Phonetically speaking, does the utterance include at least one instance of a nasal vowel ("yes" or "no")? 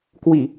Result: no